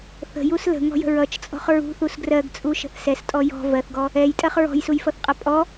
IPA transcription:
θə̤jus lə̤ŋɔ̤jə̤ ɹʌt͡ʃt͡sʼɔ̤χ ɹṳθus ɡrɜɡt͡sʼuʃə̤θ sɛstʼɔ jɔ̤ vɜθɡɔ | ɛjtʼɜχ ɹɔ̤jsujfʌθqʼʌ pʼɔ

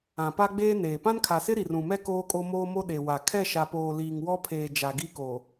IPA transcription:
ã˨pa˦ɡ͡beː˦neː˨ pã˦nkʰa˨sɪ˦ ɾi˨rũ˨mɛ˦ koː˦kʼo˦moː˦mo˦ ɗe˨wa˨ kʰɛ˦˨ʃa˨poː˨ liː˨ŋwɔ˦pʰeː˨ d͡ʒa˨ɡi˦ko˨

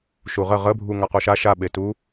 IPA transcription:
ʃuʁə ʁəbʱu ŋaquʃa ʃaɓetu

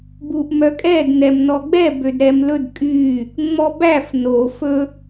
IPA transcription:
buʔmœkʼɛd nɛmnɔɡ͡bɛ bødɾɛmlɵd kʼy | ŋ͡mɔbæf no fɵ

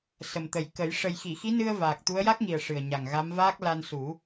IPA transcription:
sə˨˩mt̪ə˨˩jkə˨˩˦j ʂə˨˩jxi˨˩˨xi˧˥nɨ˧ə̯ vaː˨˩k̚t̪u˧˥ə̯ ja˦˥k̚ŋi˨˩ə̯ ʂɨ˨˩ə̯ɲa˨˩ŋɣa˧˥m vaː˦˥k̚la˧nsu˨˩˦

